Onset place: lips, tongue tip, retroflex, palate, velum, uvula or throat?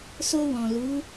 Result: tongue tip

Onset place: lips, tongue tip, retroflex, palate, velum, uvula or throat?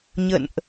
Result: palate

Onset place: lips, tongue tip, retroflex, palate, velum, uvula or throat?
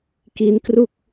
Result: velum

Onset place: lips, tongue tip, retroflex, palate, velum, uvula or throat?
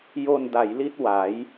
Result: palate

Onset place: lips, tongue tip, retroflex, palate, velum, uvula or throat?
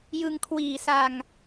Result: palate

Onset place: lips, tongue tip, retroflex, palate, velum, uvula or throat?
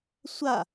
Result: tongue tip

